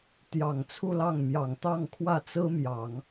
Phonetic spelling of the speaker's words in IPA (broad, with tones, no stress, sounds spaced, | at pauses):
t̪ j ɑ˨˩ ŋ t͡sʰ u˥˧ l ɑ˥˩ ŋ m j ɑ˨˩ ŋ t̪ ɑ˥˧ ŋ kʰ w ä˥˩ t͡s ɹ̩˥ m j ɑ˨˩˦ ŋ